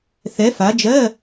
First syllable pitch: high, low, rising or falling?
rising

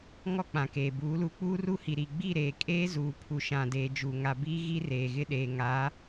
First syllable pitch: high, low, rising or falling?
high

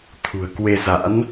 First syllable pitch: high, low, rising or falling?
low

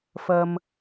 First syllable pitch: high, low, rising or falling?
low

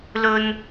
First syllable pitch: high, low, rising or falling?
high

